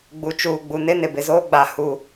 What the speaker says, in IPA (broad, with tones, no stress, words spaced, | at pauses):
ɡ͡bu˨t͡ʃuː˨ɡ͡bu˨nɪ˦ nɪ˨ bɪ˨zoː˦ɡ͡ba˨ hu˨